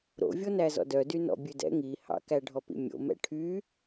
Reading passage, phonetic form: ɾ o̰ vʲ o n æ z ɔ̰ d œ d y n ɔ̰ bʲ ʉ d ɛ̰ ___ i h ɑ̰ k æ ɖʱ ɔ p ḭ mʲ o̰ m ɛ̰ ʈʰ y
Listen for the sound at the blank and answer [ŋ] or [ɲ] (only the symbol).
ŋ